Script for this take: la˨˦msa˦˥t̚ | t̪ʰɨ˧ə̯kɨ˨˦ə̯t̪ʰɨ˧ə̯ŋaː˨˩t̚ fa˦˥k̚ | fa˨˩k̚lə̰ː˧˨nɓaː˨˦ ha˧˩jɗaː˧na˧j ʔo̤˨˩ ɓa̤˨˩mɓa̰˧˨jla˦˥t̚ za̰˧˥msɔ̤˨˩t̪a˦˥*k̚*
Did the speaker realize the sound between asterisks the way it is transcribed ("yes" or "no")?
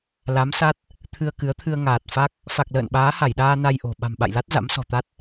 no